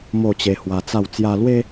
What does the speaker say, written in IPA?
m o˥˧ t͡ɕ e˧ h w a˧ t͡s a˥˧ w t͡s j a˧ l w e˦

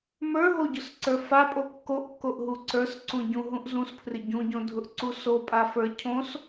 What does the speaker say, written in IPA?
m ə˞ ɦ o ɟ ʊ s ǀ ə˞ f a pʼ o kː o ʔ kː o ʔ ɦ u ǀ ə˞ s ǀ ũ ɟ ũ ɦ ũ ʔ z ũ s pʰ r ɪ ɟ ũ ɟ õ dʱ ʊ ʔ ǀ u s o pʼ a f ə˞ cʰ õ s

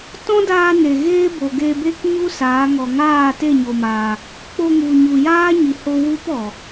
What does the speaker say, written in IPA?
t ɔ̃˦ d aː˧ n e˨ ɣ eː˦ b o˨ ɡ e˧ b e˦ k ɲ u˦ s aː˨˦ ŋ ɔ˨ ŋ aː˦˨ t e˦˨ ɲ o˧ m aː˧ | k͡p o˧ ŋ u˨ ɲ u˨ j aː˦ ɲ i˨ h o˧ w u˦ p ɔ˨

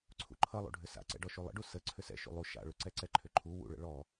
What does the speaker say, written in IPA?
ǀʰ ṵ ǃʰ ʌ lˠ ṵ ɖʱ ʏ s a̰ ǀ ɛ̰ ɖ ɔ ʃ u lˠ ə̰ ɖ u s ə ǀʰ ʏ s ɛ̰ ʃ ṵ lˠ u ʃ a̰ ɭ ʏ ǀ ɛ ǀ ɛ ǃʰ ʏ ǃʰ u w ṵ ɭ ə̰ ɭ ɔ

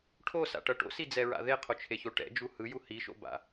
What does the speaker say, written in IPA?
ʈʰ o s a̰ ʈ ʌ ʈ o̰ s i d͡z ɛ ɹ a̰ ð e qʰ o t͡ʃʰ e ç o ʈ ɛ̰ d͡ʒ u h ɯ j u h i ʃ o̰ b a̰

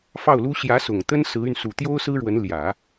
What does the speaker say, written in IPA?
f ɑ˥˩ ʊ̯ l u˥ ɕ j ä˧˥ s ʊ˨˩ ŋ t̪ ə˥ n s ɹ̩˧˥ y˧ n s u˨˩ t̪ j o˥ ʊ̯ s ɹ̩˥ ɻ w ə˧˥ n l j ä˨˩˦

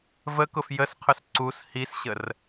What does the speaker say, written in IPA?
v ə k ʊ f j ə s qʰ ʊ s ǀ u s h i s ɕ ə r

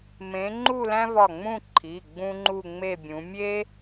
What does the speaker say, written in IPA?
m ẽ˨˦ ŋ͡ǃ u˥˧ l æ̃˥ v ɒ˧˩ ŋ͡m ũ˥˧ ǃʰ i˩˧˩ ɡ͡b ũ˥ ŋ͡ǃ u˥˧ ŋ͡m e˥˧ bʲ ũ˨˦ mʲ e˥

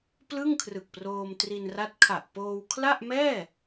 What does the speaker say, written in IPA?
p l ɯ˥˩ ŋ kʰ r ɯ˨˩ k̚ p r oː˧ m t r i˧ n r a˦˥ t̚ kʰ a˨˩ ʔ p oː˧ w kʰ l a˥˩ ʔ m ɛː˥˩

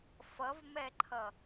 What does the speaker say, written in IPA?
f ʌ v m ɛ ǃʰ ʌ

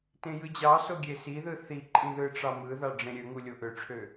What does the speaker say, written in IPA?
t ẽ j ɯ d͡ʑ ɑ s o ɡʲ e s i ð ɯ θ i ǃʼ ĩ ð ɯ ʈ͡ʂ ɑ m ɯ ð ɑ ɖ͡ʐ ẽ ɾʲ ø ŋ u lʲ o ʔ ø ʈ͡ʂʰ ø

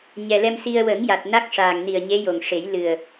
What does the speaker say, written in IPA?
ɲ ɛ˨˩ l ɛ˧ m s i˧ ə̯ w ə˨˩˦ ŋ j a˨˩ t̚ n a˦˥ k̚ ʂ aː˨˩ ŋ n i˨˩ ə̯ ɲ e˧˥ j o˨˩ ŋ ʂ e˨˩˦ j l ɨ˨˩ ə̯

